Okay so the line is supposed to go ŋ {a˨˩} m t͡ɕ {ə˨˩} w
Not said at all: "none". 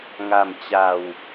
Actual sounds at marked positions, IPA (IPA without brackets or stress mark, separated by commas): a˨˩, a˨˩